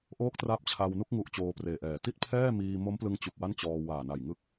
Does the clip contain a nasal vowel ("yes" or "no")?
no